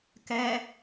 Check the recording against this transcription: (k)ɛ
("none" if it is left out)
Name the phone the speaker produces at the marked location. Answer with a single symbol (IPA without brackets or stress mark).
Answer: k